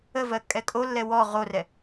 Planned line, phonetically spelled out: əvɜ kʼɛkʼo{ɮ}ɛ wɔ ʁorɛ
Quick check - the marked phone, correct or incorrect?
incorrect